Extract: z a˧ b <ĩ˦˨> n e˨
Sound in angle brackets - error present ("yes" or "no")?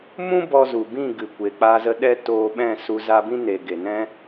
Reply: yes